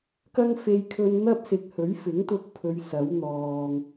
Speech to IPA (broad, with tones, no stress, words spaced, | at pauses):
kɐ˥ŋfe˧jkʰɵ˧n n̪ɐ˥p̚sɪ˨k̚ hɵ˨˥ɥfɪ˨˥ŋt̪ʊ˧k̚pʰɵ˨˧ɥ sɐ˨˥wn̪ɔː˨ŋ